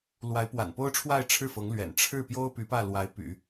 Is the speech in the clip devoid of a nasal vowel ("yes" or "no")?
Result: yes